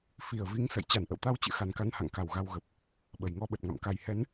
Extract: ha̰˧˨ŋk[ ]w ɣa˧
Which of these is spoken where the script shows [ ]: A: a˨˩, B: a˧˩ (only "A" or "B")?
B